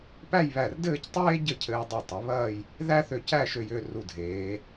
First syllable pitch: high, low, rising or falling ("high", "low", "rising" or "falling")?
falling